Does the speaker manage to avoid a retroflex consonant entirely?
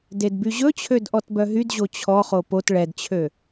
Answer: no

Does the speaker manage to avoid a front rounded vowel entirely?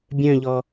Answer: no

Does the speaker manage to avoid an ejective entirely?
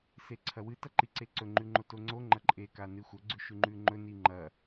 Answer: no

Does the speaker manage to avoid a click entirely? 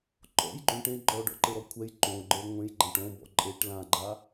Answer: no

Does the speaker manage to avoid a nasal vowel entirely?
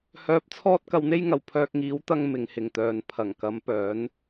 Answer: yes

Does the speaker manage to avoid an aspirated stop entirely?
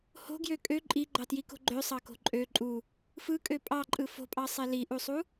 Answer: yes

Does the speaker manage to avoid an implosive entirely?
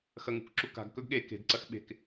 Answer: no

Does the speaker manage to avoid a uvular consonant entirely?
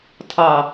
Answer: yes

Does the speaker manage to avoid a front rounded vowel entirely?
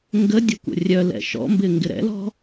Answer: no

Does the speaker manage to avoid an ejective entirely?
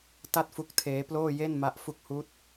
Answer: yes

